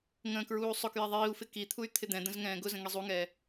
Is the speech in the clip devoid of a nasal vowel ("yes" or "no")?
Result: no